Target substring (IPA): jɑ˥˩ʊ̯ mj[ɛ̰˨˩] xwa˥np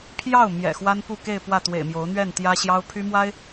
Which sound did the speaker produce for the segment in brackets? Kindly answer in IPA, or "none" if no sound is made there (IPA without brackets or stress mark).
ɛ̰˨˩